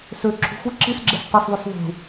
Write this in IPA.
s ø ǁʰ ṳ xʷ ɯ ǁ i s ɡ͡ǁ e s tˤ ɯ s ðˤ y s ðˤ ṳ

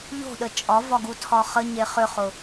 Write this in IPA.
ʎ o̤ ɗ ə t͡ʃʼ ɒ v ɒ ɡ u tʰ ɒ χ ə ɲ e χ ʏ χ ʊ

